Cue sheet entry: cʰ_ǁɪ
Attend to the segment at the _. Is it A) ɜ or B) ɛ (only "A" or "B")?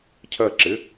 A